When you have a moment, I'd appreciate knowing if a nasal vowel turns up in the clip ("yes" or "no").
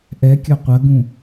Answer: yes